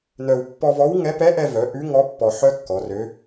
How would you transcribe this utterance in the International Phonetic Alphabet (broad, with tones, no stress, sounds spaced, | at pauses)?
n œ˧ w pː ɔ˧ v ɔ˧˥ w ŋ ɛ˧˥ p ɛ˧˥ ʔ ɛ˧ v œ˩˧ ʔ ʉ˧˥ ŋ ɔ˧˥ pː ɔ˧ ħ œ˥ kː ɔ˩˧ r ø˧˥